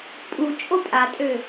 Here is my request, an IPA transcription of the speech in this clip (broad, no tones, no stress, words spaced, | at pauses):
pʼu t͡ʃʼopʼatʼø